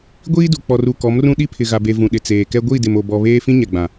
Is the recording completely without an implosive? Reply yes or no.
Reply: no